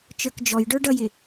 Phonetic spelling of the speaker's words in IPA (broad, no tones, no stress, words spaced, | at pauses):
t͡ʃə˞kd͡ʒɔjɖə˞ ɖʌjɪ